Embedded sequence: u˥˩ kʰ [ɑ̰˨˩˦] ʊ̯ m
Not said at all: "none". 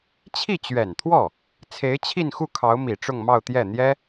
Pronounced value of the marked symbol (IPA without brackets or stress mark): ɑ˧˥